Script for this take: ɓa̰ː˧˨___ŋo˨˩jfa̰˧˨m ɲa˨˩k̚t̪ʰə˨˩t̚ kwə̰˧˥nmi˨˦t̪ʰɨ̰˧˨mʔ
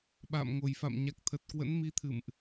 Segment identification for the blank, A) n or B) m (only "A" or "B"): B